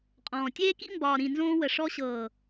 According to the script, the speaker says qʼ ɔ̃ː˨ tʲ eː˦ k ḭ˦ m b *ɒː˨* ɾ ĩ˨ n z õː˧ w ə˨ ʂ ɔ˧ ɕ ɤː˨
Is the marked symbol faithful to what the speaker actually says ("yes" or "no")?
yes